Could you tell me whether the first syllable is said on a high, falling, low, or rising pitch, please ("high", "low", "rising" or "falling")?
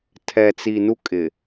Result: low